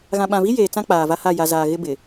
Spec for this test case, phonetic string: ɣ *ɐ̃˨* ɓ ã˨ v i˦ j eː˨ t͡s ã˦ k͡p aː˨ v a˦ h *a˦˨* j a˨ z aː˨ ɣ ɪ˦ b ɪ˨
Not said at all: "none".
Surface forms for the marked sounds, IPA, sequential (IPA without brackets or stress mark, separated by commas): ã˨, a˦˨